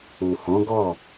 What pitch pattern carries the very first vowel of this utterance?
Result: low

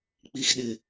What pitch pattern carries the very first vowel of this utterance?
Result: low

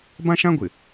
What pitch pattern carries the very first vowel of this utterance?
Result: high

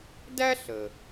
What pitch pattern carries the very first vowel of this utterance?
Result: high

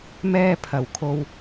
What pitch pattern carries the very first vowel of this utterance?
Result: high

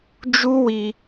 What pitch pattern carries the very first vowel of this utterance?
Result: high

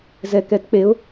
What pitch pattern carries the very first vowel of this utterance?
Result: low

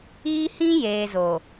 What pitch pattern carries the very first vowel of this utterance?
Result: high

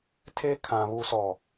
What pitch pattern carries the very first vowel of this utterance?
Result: high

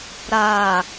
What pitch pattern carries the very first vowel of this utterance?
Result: low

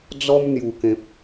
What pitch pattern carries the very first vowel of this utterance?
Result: high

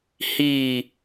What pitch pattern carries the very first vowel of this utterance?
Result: falling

